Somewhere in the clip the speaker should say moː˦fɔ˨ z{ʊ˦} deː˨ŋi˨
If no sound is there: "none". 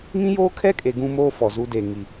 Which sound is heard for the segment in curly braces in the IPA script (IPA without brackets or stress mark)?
u˦